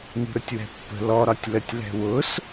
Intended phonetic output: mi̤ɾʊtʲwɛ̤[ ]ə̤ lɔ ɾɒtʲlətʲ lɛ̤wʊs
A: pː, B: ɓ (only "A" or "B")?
A